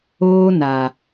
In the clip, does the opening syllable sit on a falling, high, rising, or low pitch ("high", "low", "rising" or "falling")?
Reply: high